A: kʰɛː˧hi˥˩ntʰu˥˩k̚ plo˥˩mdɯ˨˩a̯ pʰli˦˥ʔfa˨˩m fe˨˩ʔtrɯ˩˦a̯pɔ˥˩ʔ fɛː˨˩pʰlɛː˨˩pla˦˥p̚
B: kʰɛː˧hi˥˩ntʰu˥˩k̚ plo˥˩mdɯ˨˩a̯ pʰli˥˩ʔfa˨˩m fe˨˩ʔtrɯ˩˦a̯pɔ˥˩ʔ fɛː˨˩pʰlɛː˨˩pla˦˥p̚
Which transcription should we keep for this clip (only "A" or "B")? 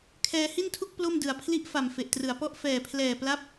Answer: B